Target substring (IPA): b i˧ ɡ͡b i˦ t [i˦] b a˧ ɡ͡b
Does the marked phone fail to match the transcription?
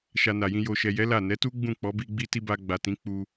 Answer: no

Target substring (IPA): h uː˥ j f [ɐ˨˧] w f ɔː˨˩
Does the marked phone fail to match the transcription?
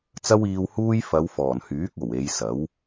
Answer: no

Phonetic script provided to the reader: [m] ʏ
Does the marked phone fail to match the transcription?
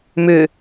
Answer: no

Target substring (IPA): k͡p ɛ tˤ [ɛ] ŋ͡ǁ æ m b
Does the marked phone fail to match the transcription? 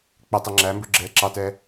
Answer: no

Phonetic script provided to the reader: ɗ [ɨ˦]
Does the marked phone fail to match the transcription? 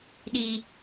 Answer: yes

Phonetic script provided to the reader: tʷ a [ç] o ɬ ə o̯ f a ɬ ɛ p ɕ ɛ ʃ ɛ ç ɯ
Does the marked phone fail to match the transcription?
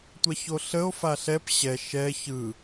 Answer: no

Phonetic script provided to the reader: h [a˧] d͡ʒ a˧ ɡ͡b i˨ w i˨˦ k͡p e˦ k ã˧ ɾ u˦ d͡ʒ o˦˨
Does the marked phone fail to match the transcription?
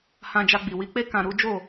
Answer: yes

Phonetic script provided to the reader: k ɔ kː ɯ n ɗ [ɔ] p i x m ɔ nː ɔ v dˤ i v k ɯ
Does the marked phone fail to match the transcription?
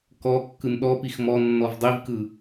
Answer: no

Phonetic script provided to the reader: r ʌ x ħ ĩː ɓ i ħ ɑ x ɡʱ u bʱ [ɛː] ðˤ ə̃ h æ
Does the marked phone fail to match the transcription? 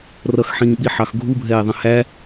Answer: no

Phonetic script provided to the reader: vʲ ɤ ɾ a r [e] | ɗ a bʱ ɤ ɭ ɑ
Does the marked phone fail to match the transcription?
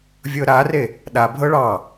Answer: no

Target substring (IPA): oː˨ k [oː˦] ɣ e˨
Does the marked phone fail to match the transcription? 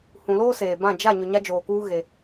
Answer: yes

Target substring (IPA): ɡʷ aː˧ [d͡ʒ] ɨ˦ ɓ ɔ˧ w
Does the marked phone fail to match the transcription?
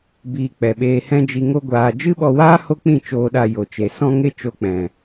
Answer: no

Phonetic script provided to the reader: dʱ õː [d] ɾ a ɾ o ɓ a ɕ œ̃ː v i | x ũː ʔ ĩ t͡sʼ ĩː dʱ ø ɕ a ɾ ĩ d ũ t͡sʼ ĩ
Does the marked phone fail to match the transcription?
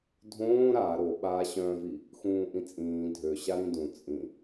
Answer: yes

